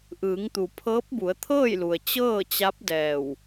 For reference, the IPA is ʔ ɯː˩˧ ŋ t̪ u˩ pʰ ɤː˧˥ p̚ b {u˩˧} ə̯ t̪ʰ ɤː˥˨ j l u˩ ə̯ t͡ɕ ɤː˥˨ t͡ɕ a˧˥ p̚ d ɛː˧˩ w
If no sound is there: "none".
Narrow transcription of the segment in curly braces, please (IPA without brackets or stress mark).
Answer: u˩˧